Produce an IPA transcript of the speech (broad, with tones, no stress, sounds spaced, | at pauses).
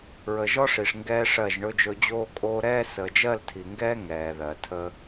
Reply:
ɹ ə˨ ʒ ɔ˦ ʂ i˨ ʂ ŋ ɡ ɛː˦ ʂ ɜ˦˨ ʒ ɳ ɵ˦ d͡ʒ ɵ˦ d͡ʑ oː˦ kʼ oː˦ ɾ ɛː˦ s əː˨ d͡ʒ ɜ˦˨ l tʰ i˨ ŋ ɡ ɛː˦ ŋ ɛː˨ ð ɜ˨ tʰ əː˦